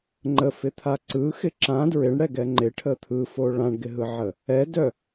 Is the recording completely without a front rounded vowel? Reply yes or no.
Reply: no